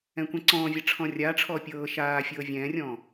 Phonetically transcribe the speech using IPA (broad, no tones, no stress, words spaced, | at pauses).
ɛ̃kʷɛ̃ǀɔ̃ːvʲa ʈ͡ʂʰɔ̃rʲaːʈ͡ʂʰɔː pʲɤː ʃaː fʲɤːvʲɛ̃ːrʲɔ̃ː